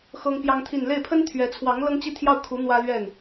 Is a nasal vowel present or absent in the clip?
absent